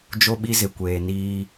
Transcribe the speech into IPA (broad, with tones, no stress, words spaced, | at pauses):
d͡ʒo˦ɓi˦zɪ˨kʷeː˨ niː˦